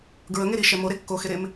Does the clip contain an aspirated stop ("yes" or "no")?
no